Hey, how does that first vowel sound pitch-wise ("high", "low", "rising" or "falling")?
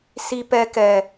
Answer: high